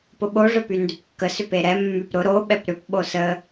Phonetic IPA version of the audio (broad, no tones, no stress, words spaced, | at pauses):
pʊɓo ʐœpyndʏpkːə sʏpeɾɛ mːypɾʊ ɾo ɓɛpɾʏp ɓosə